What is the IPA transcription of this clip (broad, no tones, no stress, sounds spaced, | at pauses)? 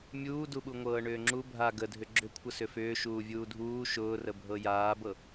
mʲ uː d u ɓ u ŋʷ ɤː ɳ ʏː ŋ͡ǁ u bʱ a ɡ ə dʱ ʏ ɡ͡ǁ ʏ kʷʰ ə s ʏ f ʏː ʃ uː vʲ uː dʱ uː ʃ ʊː r ə bʱ ɤ j aː b ɤ